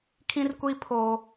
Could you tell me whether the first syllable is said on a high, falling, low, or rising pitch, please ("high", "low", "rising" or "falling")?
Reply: high